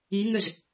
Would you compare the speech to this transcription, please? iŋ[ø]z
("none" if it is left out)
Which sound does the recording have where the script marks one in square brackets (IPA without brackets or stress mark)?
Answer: ø